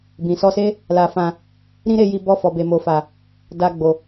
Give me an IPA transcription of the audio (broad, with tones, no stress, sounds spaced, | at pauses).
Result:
b ĩ˨ s ɔ˧ s e˦ | l a˧ f ã˧ | ɾ ĩ˦ ɾ e˧ j i˧ b ɔ˧ f ɔ˨ b e˨ m o˨ f a˨ | d a˧ ɡ͡b o˨